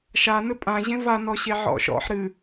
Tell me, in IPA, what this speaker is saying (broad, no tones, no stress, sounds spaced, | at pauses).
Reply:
ʃ a n ɘ pʼ ã ʑ ẽ v a n ɔ ɕ e ʕ ɔ̰ ʃ ɔ̰ ħ ɾ ɨ